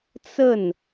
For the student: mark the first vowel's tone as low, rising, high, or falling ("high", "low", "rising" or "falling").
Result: falling